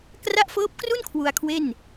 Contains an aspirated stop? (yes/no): yes